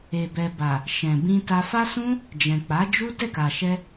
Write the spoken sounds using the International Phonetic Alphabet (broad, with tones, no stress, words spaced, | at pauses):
e˨bɛ˨ba˨ | ʃɛ̃˨bĩ˧ta˧ fa˦sũ˦ | d͡ʒɛ̃˨ k͡pa˨˦ d͡ʒu˦ dɛ˦˨ka˨ʃɛ˧